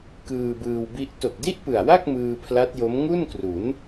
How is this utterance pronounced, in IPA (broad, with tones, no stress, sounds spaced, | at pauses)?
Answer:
k ɯː˧ b ɯː˧ w b i˦˥ ʔ t o˨˩ k̚ d i˥˩ ʔ p ɯ˨˩ a̯ w a˥˩ k̚ m ɯː˧ pʰ l a˦˥ t̚ j o˦˥ m ŋ u˥˩ n k r u˩˦ n